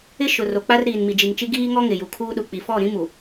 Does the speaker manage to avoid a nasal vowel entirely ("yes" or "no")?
no